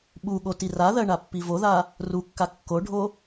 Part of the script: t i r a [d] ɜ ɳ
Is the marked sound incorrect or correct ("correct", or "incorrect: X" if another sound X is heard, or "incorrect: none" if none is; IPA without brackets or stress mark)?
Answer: incorrect: ð